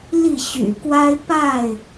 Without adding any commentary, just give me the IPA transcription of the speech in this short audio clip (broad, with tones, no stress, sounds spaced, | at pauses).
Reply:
l i˥˨ ɕ y̰˨˩ k w a˦ ɪ̯ p a˥˨ ɪ̯